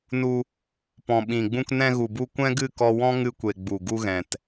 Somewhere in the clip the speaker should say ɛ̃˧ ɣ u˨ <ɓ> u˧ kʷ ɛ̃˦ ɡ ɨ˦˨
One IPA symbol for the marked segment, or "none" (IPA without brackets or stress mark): b